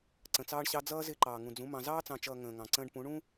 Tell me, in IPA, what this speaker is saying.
ǀ ə̃˨ t͡s ɑː˦ ɳ ɕ ɑ˦ d͡z ʌː˦ z ɪː˦ ǃ ɑː˨ ŋ ũ˨ d͡z ũ˨˦ m ɑ̃˨ z ɑː˦ t͡s ɑ̃˨ t͡ʃ ʌː˨ ŋ ə̃ː˨ ŋ ɑ̃˨ ǀ ə̃ː˦ ɖ p ũ˨˦ ɳ ũ˦

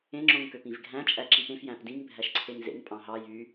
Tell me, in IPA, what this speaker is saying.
ẽ ŋ͡ǁ õ ŋ k ø p ĩ v ɡʱ æ̃ t͡ʃʼ æ ǁ i p ẽ f j æ̃ p d ĩ ŋ bʱ æ ʃ ǀʰ e ŋ z ḛ ŋ pʼ ɑ̃ ɦ ɑ j y

